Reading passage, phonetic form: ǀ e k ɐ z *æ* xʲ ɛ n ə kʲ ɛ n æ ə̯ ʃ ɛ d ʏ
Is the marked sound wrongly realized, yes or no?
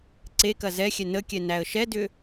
yes